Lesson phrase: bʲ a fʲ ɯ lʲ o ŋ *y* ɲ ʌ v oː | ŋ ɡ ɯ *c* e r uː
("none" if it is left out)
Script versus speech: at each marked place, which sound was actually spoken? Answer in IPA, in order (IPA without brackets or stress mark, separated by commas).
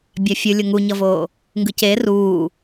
u, c